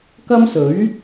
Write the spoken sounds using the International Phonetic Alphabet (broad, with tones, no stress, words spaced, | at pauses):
kɐ˥msɵ˨˥ɥ